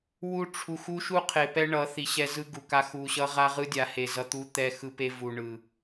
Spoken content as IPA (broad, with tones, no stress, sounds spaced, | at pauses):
w u˦ ʈ͡ʂʰ u˨ x u˦ ʃ u˦ qʰ e˨ p ɛ˦ ɳ ʌ˨˦ θ i˨ ɕ ɛ˦ z ɯ˦ ɡ u˨ k a˦ x u˨ ɕ ʌ˦ ʁ a˦ ʁ ɯ˦ dʲ a˨ h e˨ z ʌ˨ t̪ u˦ t̪ ɛ˦ x ɯ˦ p e˦ v u˨ ɳ ɯ˨